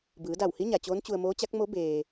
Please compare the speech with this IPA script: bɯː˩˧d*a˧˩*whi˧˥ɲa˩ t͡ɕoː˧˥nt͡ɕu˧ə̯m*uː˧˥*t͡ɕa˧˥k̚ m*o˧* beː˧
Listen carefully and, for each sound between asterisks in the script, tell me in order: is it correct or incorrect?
correct, incorrect: oː˧˥, incorrect: o˧˥

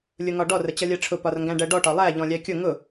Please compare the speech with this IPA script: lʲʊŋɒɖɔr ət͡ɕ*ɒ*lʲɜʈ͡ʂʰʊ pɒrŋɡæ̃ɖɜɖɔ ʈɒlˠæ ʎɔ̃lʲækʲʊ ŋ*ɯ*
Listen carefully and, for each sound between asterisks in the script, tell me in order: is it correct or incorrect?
incorrect: ʌ, incorrect: ʊ

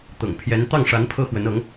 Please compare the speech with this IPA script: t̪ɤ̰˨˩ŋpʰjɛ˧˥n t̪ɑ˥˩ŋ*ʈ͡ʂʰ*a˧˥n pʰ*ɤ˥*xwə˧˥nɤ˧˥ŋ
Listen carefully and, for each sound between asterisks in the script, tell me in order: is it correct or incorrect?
incorrect: ʂ, correct

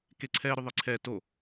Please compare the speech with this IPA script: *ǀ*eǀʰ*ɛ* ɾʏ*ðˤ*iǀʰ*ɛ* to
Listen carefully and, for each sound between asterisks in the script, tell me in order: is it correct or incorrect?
incorrect: k, correct, correct, correct

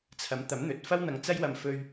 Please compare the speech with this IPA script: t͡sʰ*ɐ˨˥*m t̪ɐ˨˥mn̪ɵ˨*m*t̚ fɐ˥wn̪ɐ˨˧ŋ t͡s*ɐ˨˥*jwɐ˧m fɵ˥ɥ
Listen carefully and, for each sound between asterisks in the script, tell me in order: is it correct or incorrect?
correct, incorrect: none, incorrect: ɐ˥

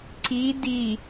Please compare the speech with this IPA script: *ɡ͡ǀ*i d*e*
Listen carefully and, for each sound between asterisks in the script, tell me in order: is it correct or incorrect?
incorrect: ǀ, incorrect: i

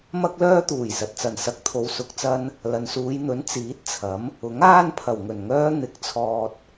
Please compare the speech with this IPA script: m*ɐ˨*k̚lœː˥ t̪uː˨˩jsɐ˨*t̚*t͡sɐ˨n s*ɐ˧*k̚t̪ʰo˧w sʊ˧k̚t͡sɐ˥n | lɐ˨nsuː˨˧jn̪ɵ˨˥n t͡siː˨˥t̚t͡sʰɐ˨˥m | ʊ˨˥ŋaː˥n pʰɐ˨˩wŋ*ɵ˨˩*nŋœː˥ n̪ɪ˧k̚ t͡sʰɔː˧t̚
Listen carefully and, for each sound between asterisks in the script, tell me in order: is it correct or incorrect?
incorrect: ɐ˥, correct, correct, correct

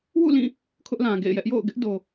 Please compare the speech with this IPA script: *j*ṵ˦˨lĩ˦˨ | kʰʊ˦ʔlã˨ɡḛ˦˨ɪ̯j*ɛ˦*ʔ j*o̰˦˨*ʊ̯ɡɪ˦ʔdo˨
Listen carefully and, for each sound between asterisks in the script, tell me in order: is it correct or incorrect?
incorrect: w, correct, correct

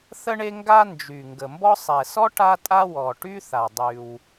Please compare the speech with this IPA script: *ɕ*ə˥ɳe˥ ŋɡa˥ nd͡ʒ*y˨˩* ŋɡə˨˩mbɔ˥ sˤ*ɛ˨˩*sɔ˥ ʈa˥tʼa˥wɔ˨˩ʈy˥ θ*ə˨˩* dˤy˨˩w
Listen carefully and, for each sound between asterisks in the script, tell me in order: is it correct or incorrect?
incorrect: θ, correct, correct, incorrect: a˨˩

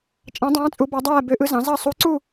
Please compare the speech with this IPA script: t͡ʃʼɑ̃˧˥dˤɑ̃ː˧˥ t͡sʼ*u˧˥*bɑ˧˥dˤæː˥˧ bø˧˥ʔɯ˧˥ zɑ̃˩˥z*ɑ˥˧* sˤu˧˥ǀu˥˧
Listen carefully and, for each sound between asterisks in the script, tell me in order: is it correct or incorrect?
correct, correct

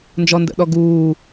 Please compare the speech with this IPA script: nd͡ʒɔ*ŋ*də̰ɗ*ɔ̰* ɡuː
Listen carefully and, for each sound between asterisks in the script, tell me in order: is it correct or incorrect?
incorrect: n, incorrect: ɔ

